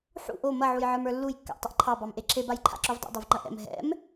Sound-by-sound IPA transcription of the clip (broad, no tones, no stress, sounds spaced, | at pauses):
ħ ṵ ʔ o m ɐ ʕ u j ʕ ə˞ m ə˞ lː u j kː a̰ ʔ tˤ ə ʔ ǃʰ ɑ b ɑ m ʔ e ǁʰ e b a j ǃʰ a̰ ǁ o v dˤ ṵ dˤ o v ŋ͡ǃ ɐ ʔ ɛ̰ m ɦ ɛ̰ m